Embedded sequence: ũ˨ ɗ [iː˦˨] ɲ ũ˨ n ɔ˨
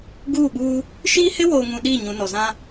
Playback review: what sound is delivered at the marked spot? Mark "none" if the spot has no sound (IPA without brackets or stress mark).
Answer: iː˦˨